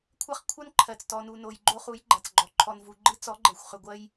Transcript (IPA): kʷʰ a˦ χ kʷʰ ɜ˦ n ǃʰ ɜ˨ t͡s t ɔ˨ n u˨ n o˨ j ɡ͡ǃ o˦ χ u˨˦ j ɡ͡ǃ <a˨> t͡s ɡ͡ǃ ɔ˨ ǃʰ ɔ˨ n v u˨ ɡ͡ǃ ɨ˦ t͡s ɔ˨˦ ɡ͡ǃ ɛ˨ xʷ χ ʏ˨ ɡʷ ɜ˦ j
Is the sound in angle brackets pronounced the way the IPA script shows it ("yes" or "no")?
yes